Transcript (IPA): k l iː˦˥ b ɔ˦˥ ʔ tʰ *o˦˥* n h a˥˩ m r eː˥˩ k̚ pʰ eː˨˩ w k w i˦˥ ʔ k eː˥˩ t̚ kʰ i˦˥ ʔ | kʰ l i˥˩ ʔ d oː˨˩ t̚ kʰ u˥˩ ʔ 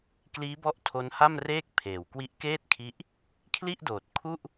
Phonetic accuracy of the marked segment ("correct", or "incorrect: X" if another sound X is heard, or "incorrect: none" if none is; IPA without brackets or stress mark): correct